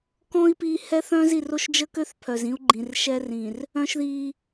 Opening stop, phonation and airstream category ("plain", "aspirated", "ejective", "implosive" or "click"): plain